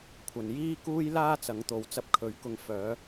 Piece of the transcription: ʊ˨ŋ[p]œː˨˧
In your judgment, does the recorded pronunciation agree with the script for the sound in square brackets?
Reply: no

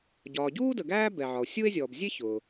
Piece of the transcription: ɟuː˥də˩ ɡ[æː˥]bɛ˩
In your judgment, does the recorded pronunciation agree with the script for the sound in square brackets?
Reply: yes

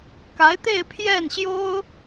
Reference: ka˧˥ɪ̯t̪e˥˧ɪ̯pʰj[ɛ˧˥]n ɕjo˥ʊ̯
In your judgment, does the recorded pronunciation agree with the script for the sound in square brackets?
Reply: no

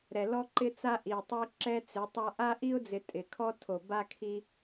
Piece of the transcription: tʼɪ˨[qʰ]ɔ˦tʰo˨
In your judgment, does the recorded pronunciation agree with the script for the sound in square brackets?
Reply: no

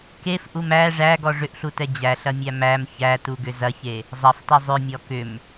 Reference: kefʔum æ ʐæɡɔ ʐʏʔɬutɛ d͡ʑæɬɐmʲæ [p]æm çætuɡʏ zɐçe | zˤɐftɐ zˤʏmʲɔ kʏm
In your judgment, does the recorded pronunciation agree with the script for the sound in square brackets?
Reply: no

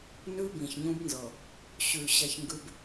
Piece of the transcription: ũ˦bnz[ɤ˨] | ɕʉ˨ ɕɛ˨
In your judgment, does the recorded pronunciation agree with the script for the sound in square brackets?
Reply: yes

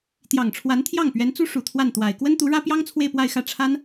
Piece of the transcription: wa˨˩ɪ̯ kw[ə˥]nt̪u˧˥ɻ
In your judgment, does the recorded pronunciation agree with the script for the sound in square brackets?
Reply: yes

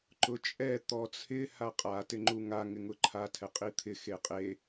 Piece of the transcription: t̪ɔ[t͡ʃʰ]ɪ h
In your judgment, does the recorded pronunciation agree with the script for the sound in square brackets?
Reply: no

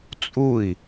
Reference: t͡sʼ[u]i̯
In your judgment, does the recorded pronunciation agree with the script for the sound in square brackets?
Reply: yes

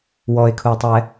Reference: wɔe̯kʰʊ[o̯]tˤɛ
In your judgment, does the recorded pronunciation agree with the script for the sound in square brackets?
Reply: no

